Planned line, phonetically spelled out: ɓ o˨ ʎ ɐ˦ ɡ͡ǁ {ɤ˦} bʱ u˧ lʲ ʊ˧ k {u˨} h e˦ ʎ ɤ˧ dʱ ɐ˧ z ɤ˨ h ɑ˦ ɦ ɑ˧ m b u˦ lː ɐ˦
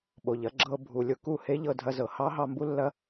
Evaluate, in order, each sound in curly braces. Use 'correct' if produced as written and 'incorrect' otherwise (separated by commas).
correct, incorrect